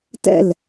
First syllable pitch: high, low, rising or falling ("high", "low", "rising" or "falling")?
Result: falling